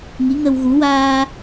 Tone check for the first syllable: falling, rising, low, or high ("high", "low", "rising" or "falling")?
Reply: rising